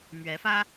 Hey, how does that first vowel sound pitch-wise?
rising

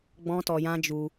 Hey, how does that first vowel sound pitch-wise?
high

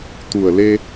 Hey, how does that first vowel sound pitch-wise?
low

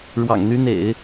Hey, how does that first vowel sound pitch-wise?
low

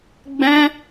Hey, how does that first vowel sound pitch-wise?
high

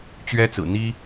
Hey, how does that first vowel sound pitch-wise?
high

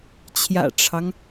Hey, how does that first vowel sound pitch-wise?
low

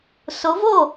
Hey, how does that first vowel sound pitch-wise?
rising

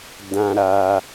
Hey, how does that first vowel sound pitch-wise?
low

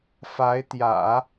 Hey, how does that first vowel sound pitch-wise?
rising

